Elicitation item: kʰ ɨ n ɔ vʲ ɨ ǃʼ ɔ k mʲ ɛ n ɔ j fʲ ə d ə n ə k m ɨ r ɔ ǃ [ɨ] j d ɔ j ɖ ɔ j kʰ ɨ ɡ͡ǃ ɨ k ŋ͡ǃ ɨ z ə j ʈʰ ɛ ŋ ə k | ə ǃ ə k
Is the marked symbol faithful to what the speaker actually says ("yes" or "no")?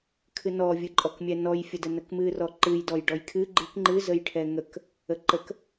yes